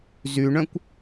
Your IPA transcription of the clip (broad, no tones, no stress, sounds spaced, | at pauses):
z y ɳ œ̃ kʷ